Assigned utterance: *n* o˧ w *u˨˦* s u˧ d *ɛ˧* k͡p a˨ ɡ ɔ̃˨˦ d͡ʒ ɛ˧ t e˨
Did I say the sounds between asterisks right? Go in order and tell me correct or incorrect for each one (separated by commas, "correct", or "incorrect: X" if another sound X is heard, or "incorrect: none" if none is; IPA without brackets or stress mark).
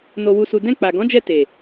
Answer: correct, incorrect: u˧, incorrect: ɛ̃˧